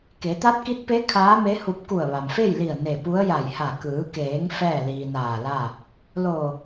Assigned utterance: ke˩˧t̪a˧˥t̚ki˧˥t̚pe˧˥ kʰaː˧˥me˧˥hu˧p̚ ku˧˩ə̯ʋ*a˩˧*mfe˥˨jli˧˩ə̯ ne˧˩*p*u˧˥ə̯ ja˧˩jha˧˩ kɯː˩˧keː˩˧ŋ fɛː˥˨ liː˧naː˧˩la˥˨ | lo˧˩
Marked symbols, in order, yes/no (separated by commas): no, yes